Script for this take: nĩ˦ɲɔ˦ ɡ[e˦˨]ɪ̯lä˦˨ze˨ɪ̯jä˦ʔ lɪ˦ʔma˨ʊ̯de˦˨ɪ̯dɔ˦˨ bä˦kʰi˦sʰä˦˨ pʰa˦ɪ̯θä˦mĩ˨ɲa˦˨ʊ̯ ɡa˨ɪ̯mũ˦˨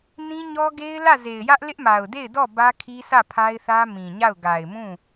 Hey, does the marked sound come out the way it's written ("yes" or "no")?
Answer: no